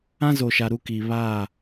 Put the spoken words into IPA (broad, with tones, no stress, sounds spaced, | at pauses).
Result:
ã˦ z o˨ ʃ a˨ ɾ u˦ k i˨ β a˦˨